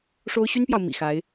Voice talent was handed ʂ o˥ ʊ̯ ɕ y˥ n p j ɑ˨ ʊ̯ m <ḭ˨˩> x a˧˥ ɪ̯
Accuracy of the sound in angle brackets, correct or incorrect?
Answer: correct